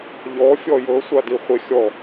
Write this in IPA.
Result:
ʎ ɔ fʲ ɔ j ɤ sʷ a d i χʷ e xʲ ɔ

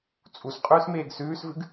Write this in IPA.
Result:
t͡sʼ u s qʼ ʉː s m eː ɡ s ʉː s v ɨ ɡ

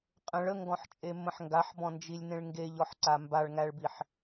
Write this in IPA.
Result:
qʼ ə̃ ɭ ə ŋ ɡ ɔ̃ ħ t͡ʃʼ e mː ə̃ ħ ŋ ɡ a ħ b ɔ̃ n d͡ʒ i lʲ n ẽ ɭ ŋ ɡ e ʎ ɔ ħ ǀ a m b a ɭ ŋ æ ɭ b i ħ

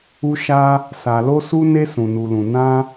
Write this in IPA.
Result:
u˧ ʃ a˧ | s a˨ l o˧ s u˧ n e˧ s ũ˨ n u˨ l ũ˨ n ã˧

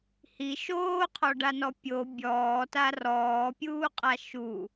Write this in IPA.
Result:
h i ʃ oː qʰ ɔ ɖ a n ɔ pʲ o bʲ ɔː t a r ɔː pʲ uː qʼ a ʃ u

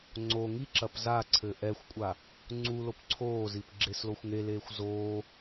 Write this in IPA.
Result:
ŋ͡ǀ o ŋ i ǁ ɐ p z a ǀʰ ɘ ʔ ɛ xʷ kʷʼ a | ŋ͡ǀ u l o p ǀʰ oː z i p ɡ͡ǁ e s l o xʷ ŋ e l eː xʷ z oː

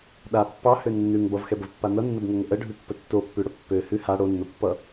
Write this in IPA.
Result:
ɗ a pː ɑ h ø nː ʉ ŋ b ʌ v x ɛ b ə v pː a n ʌ nː ə b ŋ ɛ ŋ ə ʔ ə ɖʱ ʉ pː ə tː o pː ʉ ɽ ə pː ø h ʉ h a ɽ o nː o pː ʌ

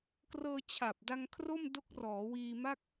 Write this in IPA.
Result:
k r ɤː˧ t͡ɕʰ a˨˩ p̚ d a˧ ŋ kʰ r o˥˩ m d o˦˥ k̚ r ɔː˩˦ w iː˧ m a˥˩ k̚

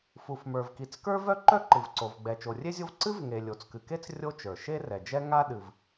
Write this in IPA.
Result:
f u˩ f m ə˞˩ v k i˩ t͡s k ə˞˥ v œ˥ ǃ œ˥ ǃ ɨ˩ v ǀ o˩ v ɡ͡b ɛ˩ t͡ʃ o˩ rʲ e˥ zʲ o˥ v ǀ ɨ˥ v ŋ e˩ lʲ o˩ t͡s k ɨ˩ k e˥ t͡s rʲ o˥ t͡ʃ ə˞˩ ʃ e˥ r ɛ˩ d͡ʒ ɛ˥ ŋ a˥ ɗ ɨ˩ v

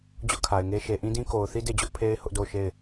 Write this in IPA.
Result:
d͡ʑ ʊ˦ ʔ kʰ a˨ ɪ̯ ŋ e˦ ʃ e˨ ʔ ĩ˦ d ĩ˦ k o˨ ʊ̯ θ i˦ d e˦˨ d͡ʑ ʊ˦ ʔ pʰ e˦ ɪ̯ h ʊ˦ ʔ d o˦˨ ʊ̯ ʃ e˦˨ ɪ̯

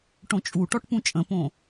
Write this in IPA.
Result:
ʈ õ t͡ʃʼ u ʈ ɔ ʈ p ũ t͡ʃʼ ə̃ p õ

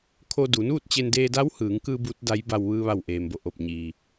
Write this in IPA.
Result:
kʰ o˧ d u˩˧ n uː˥˨ t̚ t͡ɕ e˧ n d eː˧ d a˧˥ w h ɯː˩˧ ŋ k ɯː˧ b uː˧˥ t̚ d a˧˥ j b a˧ w ʋ ɯː˧ ʋ a˧˩ w ʔ eː˩ m b o˧˩ ʔ o˧˩ p̚ ɲ iː˩

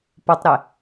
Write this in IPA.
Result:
p o tˤ ɾ e

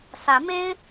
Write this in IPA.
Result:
s ä˨˦ m e˦ ɪ̯

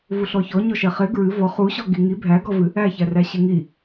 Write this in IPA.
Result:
v u ɬ ɔ ç ɔ ɲ ɔ ʃ ɛ χ e ɡ ɹ ɨ v ɔ χ u ɕ ɔ ɡ i ŋ i bʱ æ ɡ ɔ v ɨ | æ ç æ r æ ɕ ɨ ŋ i

